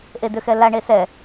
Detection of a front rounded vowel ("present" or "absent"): present